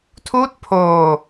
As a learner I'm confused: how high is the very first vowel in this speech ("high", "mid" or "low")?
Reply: high